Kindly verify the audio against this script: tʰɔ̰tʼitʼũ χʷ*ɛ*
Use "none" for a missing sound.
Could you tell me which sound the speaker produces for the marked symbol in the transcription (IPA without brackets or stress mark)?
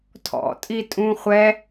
ɛ